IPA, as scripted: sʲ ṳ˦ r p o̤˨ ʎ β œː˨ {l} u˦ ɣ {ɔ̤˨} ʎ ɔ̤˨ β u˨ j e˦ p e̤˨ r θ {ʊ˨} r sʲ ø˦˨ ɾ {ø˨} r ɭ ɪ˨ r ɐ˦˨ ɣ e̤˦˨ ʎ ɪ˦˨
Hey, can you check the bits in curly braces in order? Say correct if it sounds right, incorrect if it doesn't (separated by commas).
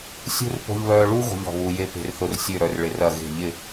incorrect, incorrect, correct, incorrect